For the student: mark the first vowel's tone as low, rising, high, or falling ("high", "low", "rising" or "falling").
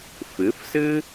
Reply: rising